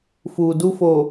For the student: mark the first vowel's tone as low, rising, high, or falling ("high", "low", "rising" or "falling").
low